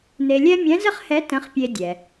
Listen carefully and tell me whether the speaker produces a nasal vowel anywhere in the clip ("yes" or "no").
yes